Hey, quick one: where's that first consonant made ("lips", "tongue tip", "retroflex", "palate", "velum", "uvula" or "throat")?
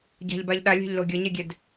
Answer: palate